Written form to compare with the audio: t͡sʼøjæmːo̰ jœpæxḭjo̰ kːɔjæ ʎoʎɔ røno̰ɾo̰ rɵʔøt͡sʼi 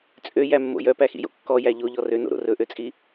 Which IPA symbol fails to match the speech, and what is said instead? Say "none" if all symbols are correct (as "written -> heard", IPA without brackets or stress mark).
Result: none